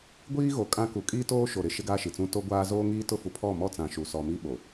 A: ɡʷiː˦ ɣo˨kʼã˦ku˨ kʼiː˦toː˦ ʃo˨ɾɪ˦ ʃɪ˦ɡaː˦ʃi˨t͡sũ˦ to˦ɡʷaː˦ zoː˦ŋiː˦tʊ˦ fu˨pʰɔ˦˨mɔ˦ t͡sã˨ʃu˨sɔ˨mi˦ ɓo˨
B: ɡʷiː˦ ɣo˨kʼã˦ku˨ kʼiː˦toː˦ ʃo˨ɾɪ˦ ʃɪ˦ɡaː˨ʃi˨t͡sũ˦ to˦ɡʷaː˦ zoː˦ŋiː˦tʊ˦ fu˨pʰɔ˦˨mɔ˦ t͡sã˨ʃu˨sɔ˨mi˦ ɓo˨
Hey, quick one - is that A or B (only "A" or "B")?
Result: A